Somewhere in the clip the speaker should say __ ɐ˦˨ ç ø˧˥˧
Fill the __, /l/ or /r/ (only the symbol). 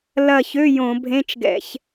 l